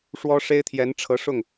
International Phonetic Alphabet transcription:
ʂwɔ˥ʂe˥ɪ̯t̪ʰjɛ˧˥n ʈ͡ʂʰɤ˧˥ʂʊ˥˩ŋ

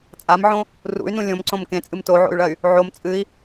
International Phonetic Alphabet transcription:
t͡sʼamʕõ | rṵy̯nũ lʲõmǀõm kẽt͡sʼɨm toʕo̰y̯ɭɐy̯ | ʕom t͡sʼɨi̯

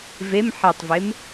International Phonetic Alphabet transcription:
vem ħɛtˤvem

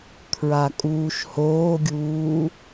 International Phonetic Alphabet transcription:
kʰɹakʼuːʃhoːɡʲuː

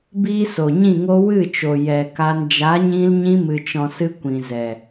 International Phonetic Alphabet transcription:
biː˦so˨ɲĩ˦˨ŋo˦ wɨ˦˨t͡ʃo˨ jɛ˨ka˧n d͡ʒa˨˦ɲĩ˧lɲĩ˧ mɨ˨t͡ʃɔ̃˨sɨ˧ kʷĩ˨zɛ˨

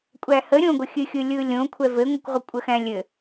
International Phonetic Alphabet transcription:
kʷʼæhə ɾʲõɡʷəxʲɨxʲɯ lʲɯlʲõ kʷʰɛvɘŋʷɨkʷʁʷə kʷʼəxæ̃lʲɘ

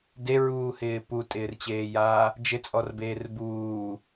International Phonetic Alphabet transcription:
deɹuːhɪː putʼɪːrt͡ɕeːjaː | d͡ʒɪt͡sʼɔrbeːr buː

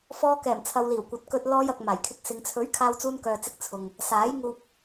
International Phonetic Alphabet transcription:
fɔː˧kɛː˨˩mt͡sʰɐ˨w liː˨˩wkʷɐ˨˥t̚ kɵ˧t̚ lɔː˧jɐ˨k̚ maː˨˩jkʰɪ˧k̚sɪ˨˧ŋ t͡sʰɵ˨˥ɥ kʰaː˧wt͡suː˧nkœː˨t͡sɪ˧k̚ t͡sʰʊ˨ŋ | saː˨˥j ŋuː˧p̚

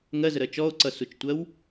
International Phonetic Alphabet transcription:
ŋɜzəɾɜ t͡ʃɔo̯ǀʌsut͡ʃtʷɜw

